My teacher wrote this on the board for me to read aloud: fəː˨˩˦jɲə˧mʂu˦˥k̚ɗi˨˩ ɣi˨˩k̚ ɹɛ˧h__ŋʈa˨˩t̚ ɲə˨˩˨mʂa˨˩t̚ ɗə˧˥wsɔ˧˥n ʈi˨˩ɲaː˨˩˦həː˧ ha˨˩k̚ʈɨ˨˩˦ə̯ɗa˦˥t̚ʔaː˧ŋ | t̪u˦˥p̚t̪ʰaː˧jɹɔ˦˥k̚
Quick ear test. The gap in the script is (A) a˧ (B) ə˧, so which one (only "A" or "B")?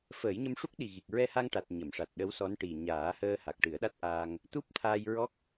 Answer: A